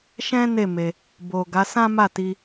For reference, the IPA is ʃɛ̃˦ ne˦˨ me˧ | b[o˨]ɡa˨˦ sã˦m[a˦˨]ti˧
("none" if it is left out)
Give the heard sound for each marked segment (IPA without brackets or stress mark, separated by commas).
o˨, a˦˨